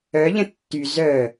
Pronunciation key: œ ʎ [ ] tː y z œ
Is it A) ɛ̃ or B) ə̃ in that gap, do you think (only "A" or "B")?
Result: B